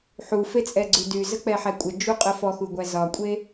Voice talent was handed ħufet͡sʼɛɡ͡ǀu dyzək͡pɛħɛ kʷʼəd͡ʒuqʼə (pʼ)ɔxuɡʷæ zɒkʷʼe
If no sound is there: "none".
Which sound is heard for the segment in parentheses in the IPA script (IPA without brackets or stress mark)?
f